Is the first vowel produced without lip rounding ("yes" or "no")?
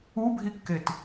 no